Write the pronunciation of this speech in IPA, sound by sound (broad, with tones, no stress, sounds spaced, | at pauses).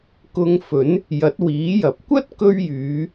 k ʊ˧ ŋ f ɵ˨˥ n | j ɐ˨˥ t̚ w iː˨˥ j ɐ˨ p̚ kʷ ɐ˥ t̚ k ɵ˧ ɥ j yː˨˧